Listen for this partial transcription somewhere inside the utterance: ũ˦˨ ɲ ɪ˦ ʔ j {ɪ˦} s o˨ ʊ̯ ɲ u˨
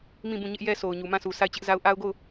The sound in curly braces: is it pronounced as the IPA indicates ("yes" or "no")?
no